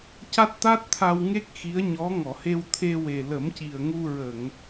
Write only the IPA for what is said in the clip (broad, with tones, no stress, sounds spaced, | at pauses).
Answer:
c a˦˥ t̚ t̪ a˦˥ t̚ t̪ʰ a˧ w ŋ e˦˥ k̚ x i˧˥ ə̯ ɲ ɔ˧˥ ŋ ɔ˨˩˨ h e˧ w t̪ʰ e˧ w e˨˩ l ə˨˩˦ m c i˨˩ ə̯ ŋ u˧ ɹ ə˨˩˨ ŋ